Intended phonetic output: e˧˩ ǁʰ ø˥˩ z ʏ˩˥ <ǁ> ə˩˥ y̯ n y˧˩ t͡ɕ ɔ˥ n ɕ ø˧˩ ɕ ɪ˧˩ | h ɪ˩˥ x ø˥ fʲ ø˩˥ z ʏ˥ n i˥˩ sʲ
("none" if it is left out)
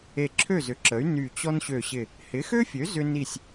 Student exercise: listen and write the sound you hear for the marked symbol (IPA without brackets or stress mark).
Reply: ǁ